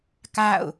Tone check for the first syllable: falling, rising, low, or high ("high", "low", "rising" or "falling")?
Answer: falling